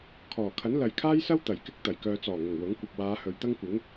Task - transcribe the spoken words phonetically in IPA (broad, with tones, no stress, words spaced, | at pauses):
kʰɔː˨˩kʰɐ˨˥n lɐ˨jkʰaː˥jsɐ˥w t̪ɐ˨˩jkɪ˥k̚ t̪ɐ˨˩jkœː˧ t͡sɔː˨˩ŋʊ˨˩ŋ wʊ˨˥ŋ kʷɐ˨p̚waː˨˧ hɵ˨ɥt̪ɐ˥ŋkʷɪ˨˥ŋ